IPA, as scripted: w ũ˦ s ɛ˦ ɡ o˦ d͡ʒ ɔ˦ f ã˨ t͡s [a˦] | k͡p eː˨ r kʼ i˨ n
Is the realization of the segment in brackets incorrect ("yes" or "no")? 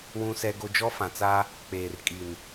no